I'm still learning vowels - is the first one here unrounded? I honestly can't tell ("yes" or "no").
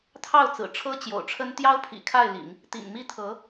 yes